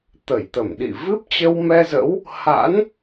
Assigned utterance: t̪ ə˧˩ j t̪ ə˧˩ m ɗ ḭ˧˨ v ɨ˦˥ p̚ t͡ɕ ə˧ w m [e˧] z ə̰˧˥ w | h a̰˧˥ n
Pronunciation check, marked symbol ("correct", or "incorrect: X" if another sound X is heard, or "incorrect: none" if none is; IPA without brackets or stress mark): incorrect: ɛ˧